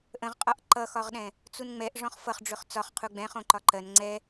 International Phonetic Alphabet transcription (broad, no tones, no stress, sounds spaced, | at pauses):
ʔ ə̃ ʁ qʼ ɒ ʔ ǃ ʌ x ɒ ʁ ɗ ɛ̃ | t͡s u n ŋ͡m ɛ ʔ ʐ ɔ̃ χ f ʌ χ ɖ͡ʐ ɵ χ t͡s ɒ χ qʰ u ɡ͡b ɛ̃ χ õ ǃ ɒ ǃ ɜ n ŋ͡ǀ ɛ